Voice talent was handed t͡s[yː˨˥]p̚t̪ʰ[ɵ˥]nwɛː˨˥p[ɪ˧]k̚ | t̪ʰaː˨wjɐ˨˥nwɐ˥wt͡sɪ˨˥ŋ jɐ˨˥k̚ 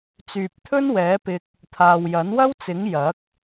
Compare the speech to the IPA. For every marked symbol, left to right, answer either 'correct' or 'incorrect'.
incorrect, correct, correct

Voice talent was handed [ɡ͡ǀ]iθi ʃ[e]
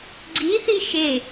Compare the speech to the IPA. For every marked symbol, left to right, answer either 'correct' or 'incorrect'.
correct, correct

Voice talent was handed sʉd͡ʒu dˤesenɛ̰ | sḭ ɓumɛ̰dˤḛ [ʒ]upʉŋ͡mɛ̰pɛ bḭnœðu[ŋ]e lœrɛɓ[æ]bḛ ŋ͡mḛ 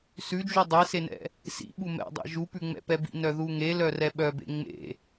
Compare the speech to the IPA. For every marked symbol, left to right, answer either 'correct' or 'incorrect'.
correct, correct, incorrect

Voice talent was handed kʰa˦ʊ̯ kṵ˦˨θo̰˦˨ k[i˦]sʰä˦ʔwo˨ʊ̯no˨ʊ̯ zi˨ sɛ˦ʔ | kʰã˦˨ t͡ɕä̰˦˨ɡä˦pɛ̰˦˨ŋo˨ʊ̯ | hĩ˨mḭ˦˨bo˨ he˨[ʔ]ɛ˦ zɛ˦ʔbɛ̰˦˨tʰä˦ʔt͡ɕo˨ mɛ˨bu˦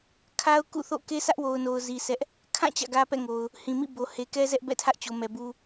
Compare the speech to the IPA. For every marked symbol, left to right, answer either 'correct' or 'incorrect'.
incorrect, incorrect

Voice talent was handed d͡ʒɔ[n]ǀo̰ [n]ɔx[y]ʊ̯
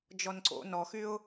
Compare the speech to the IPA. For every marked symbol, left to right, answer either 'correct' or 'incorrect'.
correct, correct, correct

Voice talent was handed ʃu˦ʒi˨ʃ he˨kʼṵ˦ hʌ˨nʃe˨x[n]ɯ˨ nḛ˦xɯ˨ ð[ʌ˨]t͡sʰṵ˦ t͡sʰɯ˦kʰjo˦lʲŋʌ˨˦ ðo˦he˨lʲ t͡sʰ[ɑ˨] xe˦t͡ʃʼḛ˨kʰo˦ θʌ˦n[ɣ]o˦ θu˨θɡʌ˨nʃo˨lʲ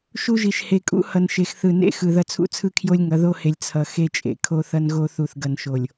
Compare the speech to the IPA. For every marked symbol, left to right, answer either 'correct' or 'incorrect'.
incorrect, incorrect, incorrect, correct

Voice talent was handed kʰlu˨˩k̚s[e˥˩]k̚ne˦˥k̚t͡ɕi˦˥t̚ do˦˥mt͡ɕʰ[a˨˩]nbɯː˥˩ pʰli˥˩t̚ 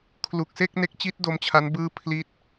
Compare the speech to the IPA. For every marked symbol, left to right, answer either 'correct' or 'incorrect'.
correct, incorrect

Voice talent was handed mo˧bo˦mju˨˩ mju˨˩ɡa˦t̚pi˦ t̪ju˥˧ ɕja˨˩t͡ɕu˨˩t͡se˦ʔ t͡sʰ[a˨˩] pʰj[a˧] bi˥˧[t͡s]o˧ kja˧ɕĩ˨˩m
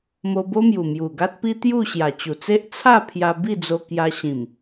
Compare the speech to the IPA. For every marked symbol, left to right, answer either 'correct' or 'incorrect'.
incorrect, correct, incorrect

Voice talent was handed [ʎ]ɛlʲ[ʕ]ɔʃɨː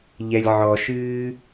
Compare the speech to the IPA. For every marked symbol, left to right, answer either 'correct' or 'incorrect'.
correct, correct

